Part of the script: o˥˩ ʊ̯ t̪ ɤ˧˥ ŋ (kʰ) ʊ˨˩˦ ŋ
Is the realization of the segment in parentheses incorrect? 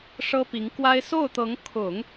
no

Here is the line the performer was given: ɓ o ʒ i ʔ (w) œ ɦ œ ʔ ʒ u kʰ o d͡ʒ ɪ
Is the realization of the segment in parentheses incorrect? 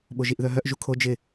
yes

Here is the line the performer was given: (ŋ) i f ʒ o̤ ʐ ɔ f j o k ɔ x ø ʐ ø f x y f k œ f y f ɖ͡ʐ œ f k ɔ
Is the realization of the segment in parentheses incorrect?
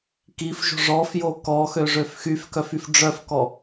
yes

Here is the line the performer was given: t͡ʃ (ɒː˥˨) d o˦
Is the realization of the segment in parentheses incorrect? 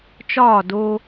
no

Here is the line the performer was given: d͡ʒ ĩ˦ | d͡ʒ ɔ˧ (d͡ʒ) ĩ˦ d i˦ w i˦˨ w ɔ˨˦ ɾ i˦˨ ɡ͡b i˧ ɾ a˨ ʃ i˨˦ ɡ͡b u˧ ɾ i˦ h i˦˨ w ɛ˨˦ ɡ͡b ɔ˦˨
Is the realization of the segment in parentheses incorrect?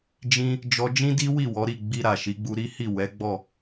no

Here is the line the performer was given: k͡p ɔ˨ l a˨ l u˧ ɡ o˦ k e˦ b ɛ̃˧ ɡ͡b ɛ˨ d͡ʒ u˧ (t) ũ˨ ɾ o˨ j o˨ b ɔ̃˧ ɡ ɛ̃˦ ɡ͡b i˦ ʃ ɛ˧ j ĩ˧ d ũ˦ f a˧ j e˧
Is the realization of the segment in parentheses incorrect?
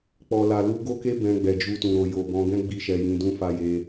no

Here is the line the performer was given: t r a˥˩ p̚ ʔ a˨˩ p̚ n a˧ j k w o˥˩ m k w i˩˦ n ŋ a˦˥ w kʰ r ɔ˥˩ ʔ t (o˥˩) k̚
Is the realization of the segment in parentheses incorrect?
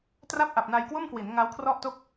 no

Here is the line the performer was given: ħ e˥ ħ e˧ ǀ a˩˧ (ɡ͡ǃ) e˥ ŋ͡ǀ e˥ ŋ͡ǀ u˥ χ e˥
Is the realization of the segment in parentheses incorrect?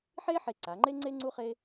yes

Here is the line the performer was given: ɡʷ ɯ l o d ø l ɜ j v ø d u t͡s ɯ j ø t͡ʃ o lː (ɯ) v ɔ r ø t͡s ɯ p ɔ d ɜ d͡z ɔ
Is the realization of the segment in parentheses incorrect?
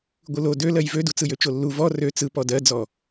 yes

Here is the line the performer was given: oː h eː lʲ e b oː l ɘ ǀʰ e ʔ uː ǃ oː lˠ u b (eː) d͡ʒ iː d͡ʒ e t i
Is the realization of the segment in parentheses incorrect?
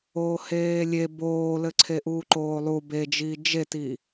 yes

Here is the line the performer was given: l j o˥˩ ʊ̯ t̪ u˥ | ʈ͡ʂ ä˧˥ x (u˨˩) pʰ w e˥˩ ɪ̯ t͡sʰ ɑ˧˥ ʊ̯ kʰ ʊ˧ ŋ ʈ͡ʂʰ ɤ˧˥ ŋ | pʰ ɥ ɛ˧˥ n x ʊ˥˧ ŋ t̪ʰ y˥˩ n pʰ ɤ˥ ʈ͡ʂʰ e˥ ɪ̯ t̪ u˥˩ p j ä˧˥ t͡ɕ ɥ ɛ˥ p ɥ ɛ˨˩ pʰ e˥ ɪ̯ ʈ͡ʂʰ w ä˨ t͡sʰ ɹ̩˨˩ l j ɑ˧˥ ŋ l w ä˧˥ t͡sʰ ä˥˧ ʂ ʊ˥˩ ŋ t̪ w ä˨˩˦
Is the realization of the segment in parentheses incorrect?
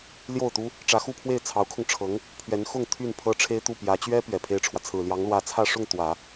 yes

